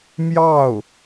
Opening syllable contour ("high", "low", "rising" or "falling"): falling